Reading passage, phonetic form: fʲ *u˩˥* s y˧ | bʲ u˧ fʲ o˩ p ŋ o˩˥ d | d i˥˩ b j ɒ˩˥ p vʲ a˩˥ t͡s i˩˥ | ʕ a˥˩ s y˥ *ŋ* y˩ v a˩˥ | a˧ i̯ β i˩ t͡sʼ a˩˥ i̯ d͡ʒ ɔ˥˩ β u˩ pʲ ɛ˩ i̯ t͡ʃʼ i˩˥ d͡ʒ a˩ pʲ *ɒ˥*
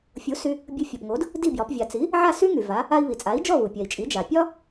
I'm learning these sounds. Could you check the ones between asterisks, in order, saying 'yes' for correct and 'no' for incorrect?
yes, yes, yes

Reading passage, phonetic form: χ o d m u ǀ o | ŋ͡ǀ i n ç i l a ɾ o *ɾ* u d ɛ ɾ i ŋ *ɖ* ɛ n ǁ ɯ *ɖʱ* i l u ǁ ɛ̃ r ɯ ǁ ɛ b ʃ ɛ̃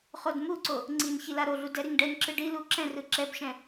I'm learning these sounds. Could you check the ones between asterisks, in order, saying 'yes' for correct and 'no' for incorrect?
no, yes, no

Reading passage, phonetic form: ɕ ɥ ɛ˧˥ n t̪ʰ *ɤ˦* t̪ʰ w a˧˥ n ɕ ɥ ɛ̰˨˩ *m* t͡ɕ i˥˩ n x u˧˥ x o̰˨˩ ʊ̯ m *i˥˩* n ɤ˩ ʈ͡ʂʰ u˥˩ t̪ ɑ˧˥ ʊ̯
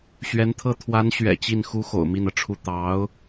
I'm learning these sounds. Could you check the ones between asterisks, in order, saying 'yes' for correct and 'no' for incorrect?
no, no, yes

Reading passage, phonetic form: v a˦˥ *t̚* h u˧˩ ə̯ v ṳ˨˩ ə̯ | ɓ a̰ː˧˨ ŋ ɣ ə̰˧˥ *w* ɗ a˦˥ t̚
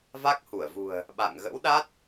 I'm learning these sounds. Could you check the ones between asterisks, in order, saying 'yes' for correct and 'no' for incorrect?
no, yes

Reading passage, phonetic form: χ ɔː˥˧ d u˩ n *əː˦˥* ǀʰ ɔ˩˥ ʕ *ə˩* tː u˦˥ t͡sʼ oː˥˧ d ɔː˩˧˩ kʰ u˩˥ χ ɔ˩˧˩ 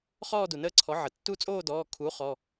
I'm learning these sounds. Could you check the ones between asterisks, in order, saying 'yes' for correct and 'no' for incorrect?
yes, yes

